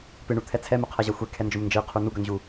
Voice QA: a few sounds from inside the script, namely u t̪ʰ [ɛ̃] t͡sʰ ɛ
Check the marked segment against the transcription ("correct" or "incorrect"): incorrect